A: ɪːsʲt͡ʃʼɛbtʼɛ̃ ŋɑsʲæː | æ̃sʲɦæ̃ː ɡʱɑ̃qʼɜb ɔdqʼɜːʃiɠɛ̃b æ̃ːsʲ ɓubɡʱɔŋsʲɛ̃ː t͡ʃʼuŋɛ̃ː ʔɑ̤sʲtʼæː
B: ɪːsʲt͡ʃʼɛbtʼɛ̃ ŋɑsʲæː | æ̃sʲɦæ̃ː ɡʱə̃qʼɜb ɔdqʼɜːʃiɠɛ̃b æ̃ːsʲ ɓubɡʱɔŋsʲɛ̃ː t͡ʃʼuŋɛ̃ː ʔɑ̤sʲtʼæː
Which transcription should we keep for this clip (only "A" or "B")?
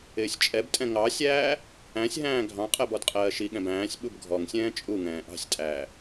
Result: A